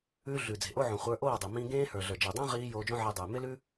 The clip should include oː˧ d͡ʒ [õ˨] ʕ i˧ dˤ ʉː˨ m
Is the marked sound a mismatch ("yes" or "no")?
yes